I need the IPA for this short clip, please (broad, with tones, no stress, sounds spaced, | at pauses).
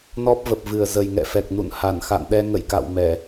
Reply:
n ɔ˦˥ p̚ v ə˨˩ p̚ v ɨ˨˩ ə̯ z ə˨˩ j ŋ ɛ̰˧˨ f ɛ˨˩ k̚ n ṵ˧˨ n h a˧˩ n x a̰˧˨ n ɗ ɛ˧ ŋ ə̰˧˨ j k a̰˧˨ w m ɛ˧˩˨